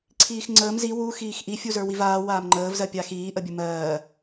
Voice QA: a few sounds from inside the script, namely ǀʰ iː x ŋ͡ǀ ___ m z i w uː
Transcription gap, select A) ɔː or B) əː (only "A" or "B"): B